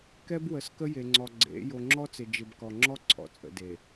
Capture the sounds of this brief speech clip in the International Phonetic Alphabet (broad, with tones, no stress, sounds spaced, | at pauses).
k ɛ˦ b w ə˨ s k ə˦ j e˨ ŋ͡ǀ ɔ˨ ɡ͡ǀ ḛ˨˦ j o˨ ŋ͡ǁ ɔ˦ t͡s ɪ˨ d͡ʒ ɪ˨ b k ɔ˨ ŋ͡ǁ ɔ˦ ǀʰ ɔ̰˨ t͡sʼ ə̰˨ d e˨